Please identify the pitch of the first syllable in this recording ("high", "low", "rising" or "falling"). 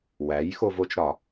rising